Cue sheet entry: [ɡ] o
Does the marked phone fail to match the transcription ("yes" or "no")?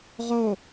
yes